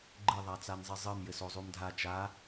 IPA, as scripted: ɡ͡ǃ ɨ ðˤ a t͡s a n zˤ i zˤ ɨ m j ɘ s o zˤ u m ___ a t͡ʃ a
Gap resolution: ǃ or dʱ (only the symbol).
dʱ